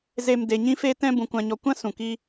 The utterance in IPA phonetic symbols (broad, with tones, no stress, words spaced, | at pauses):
ze˨m de˨ ɲĩ˧fe˧ tɛ̃˧ bũ˨ kʷã˨ɲɔ˨kʷã˦ sũ˨kiː˦